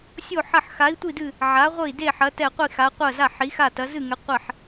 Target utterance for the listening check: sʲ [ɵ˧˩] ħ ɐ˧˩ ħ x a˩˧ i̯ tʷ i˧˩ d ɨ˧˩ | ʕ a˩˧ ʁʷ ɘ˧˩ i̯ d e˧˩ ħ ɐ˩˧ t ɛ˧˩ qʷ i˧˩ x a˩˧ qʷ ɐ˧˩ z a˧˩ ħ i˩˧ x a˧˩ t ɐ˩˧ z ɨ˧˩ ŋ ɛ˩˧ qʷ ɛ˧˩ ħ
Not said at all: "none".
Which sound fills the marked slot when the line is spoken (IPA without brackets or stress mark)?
o˧˩